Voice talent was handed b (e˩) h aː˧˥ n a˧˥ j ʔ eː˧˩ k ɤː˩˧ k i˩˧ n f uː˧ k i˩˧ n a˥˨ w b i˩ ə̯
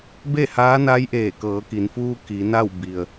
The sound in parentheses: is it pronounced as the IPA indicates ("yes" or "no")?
no